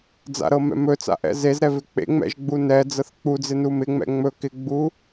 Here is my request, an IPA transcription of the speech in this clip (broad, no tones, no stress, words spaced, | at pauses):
d͡za̰ɾɤmɛ̰ mɵt͡sa̰ʔɛ̰ zezɾɛvɪ k͡pḛŋ͡mɛ̰ʒɡ͡bu nɛd͡zɤθ k͡pud͡zɪnu mɪŋ͡mɛ̰ ŋ͡mɵ kɪɡ͡bu